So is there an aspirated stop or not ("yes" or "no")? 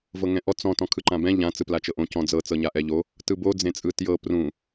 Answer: yes